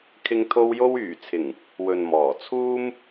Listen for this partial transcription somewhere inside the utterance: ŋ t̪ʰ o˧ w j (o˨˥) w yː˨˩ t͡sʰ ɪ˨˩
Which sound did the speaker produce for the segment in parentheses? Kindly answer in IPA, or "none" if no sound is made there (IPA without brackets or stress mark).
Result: o˧